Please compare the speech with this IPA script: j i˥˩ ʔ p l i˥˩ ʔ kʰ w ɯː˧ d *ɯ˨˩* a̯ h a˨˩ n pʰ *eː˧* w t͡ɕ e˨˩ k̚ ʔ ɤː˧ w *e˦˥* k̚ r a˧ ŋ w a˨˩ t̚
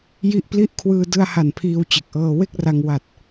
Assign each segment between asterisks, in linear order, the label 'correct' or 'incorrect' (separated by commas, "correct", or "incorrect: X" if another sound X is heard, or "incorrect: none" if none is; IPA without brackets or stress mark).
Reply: incorrect: ɯ˧, incorrect: iː˧, incorrect: e˥˩